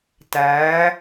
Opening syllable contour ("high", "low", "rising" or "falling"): rising